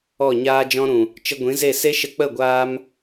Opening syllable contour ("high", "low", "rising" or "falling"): falling